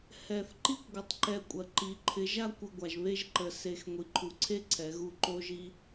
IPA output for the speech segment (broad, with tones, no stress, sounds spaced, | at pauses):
h ɛ˨ θ ǃ i˦ kʷ ɡʷ ɪ˨ tˤ ǃ ɛ˧ kʷʼ ɐ˨ ǃ i˨˦ ǃʰ ɪ˨˦ ʒ a˦ kʷ ɪ˧ ɡʷ a˨ ʒ β e˦ ʒ ǃ ə˧ s e˧ x ŋʷ i˨ ǃʰ u˨ ǀʰ e˦ ǀʰ ɛ˨˦ ɣ u˦˨ ǃ o˧ ʒ i˧